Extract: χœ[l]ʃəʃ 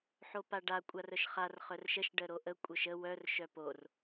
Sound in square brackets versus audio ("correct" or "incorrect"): incorrect